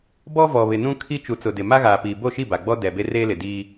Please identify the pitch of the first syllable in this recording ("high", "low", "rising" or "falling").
high